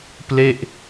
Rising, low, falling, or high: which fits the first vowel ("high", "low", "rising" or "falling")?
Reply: falling